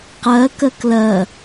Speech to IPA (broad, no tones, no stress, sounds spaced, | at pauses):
q ɜ k ɜ k l ɜ